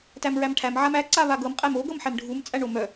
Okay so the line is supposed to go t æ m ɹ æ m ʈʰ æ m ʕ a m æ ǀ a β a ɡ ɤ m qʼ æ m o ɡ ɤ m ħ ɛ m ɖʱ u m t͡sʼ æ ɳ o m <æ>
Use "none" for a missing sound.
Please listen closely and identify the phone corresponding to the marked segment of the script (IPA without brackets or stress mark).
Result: œ